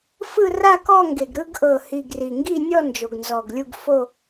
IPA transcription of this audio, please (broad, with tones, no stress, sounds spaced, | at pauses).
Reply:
f ɯ˥˧ r a˥˧ k ɔ˥˧ ŋ ɡ e˨˩ ɡ ɾ ɯ˥˧ ɡ ʔ ɤ˨˩ h i˨˩ ɡ r i˨˩ ŋ ɡ i˥˧ nʲ ɔ˥˧ n d͡ʒ o˨˩ ɡ n z ɔ˨˩ ɡ lʲ u˥˧ ɡ f o˥˧